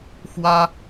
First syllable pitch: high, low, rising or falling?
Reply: high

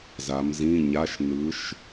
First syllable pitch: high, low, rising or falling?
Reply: rising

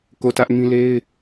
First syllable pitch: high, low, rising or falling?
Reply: falling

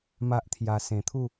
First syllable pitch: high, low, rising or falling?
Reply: high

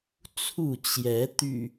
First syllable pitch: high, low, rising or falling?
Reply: falling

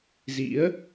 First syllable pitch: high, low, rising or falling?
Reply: rising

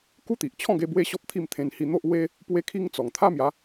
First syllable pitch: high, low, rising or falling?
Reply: high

